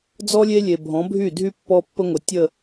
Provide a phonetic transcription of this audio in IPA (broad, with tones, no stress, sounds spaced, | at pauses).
d͡z ɔ˦ lʲ e˦ lʲ e˨ bʱ ɔ̃˨˦ bʱ y˦˨ dʱ y˦ pː ɔ˦ pː ə˦ ŋʷ ə˨ tʲ ə˦˨